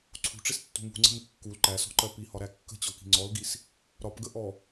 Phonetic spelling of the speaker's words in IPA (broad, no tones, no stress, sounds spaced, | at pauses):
ǀʰ ṳ ʈ͡ʂ ɪ s tː ṳ m ṳ ŋ͡ǀ ə̤ m ɪ kː u l ǃ æ s ɔ̤ ǃ ɜ p i h ɒ ɾ æ kː ə̤ t͡ɕ ɔ k i̤ ŋ͡ǀ ɔ l ɡ i s | ɾ ɒ p ɡ ə ʔ ɔ